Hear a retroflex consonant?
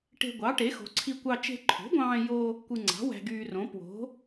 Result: yes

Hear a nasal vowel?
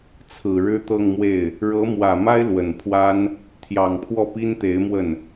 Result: no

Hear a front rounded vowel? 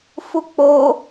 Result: no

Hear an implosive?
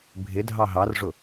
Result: no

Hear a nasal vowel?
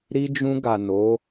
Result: yes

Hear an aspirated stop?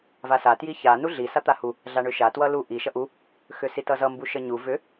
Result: no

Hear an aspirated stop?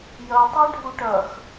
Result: no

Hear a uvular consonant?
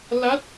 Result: no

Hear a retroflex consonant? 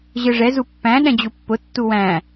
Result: yes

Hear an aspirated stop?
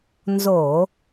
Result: no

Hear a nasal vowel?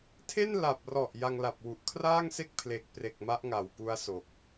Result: no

